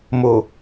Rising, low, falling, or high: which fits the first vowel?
low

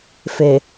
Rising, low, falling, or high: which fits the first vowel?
low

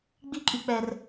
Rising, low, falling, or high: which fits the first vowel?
high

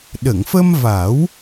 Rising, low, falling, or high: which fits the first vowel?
low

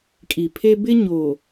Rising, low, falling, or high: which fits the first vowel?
low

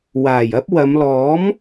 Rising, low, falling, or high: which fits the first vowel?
low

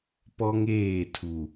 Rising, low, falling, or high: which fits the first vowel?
high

